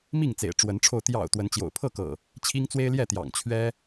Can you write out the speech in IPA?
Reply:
m i˥˨ ŋ t͡s ḛ˨˩ ɪ̯ ʈ͡ʂ w ə˨˦ n ʈ͡ʂʰ o˧ ʊ̯ t̪ j ɑ̰˨˩ ʊ̯ t̪ w ə˨˦ n t͡ɕ j o̰˨˩ ʊ̯ pʰ ɤ˥˨ k ɤ̰˨˩ | t͡ɕʰ i˦ ŋ t͡s w e˦ ɪ̯ l j ɛ˥˨ t̪ j ɑ̰˨˩ ŋ t͡ɕʰ ɥ ɛ˦

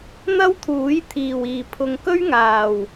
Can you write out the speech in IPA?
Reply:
n̪ ɐ˥ w t̪ʰ uː˨˥ j t̪ʰ iː˨˩ w iː˨˩ pʰ ʊ˨ ŋ k ɵ˥ ɥ ŋ aː˨˩ w

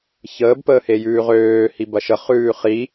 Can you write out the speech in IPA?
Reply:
ç əː b p əː h e j ʉː ʁ øː h i b ɐ ʃ ə χ ʉː χ i

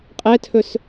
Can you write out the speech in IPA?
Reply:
qʼ ɛ tʰ ɵ s

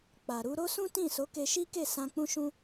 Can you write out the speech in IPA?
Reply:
k͡p a˨ ɾ u˧ ɾ o˦ s ũ˦ t ĩ˦˨ s o˨˦ k e˧ ʃ i˦ k e˦˨ s ã˧ k͡p ũ˦ ʃ ũ˦

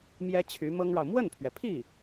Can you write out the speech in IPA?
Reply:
m j ɛ˥ t͡ɕʰ y˧˥ m ɤ˥ ŋ ɻ ɑ˨ ʊ̯ m w ə˥˩ n pʰ ɥ ɛ˩ pʰ i˥˩

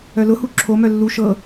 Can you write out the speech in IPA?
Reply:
œ l ʊ h u ǁʰ o m œ lː u ʃ ɤ

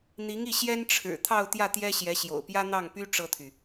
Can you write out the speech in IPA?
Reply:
n̪ i˧˥ ŋ i˥˩ ɕ j ɛ˥ n ʈ͡ʂʰ ɻ̩˨˩ t̪ʰ ɑ˥˧ ʊ̯ t̪ j ä˥˩ t̪ j ɛ˥ ɕ j ɛ˧˥ ɕ j o̰˨˩ ʊ̯ p j ä˥ n̪ ɑ˥˩ ŋ p y˥ ʈ͡ʂ ɤ˥ t̪ʰ y˨

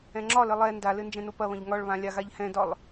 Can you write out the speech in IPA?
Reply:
ɛ̃ ŋ͡ǁ ɒ l ɘ lˠ ɛ n d a l ɘ n d͡ʒ ɛ̃ n o p ɐ β ɐ̃ ʎ ŋ ɒ ɭ β ã lʲ a ɣ a ʎ h ɛ̃ d ɒ lˠ

